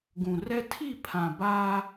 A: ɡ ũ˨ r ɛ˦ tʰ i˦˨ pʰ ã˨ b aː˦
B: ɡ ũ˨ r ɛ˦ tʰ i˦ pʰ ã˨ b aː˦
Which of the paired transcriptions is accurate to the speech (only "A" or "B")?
A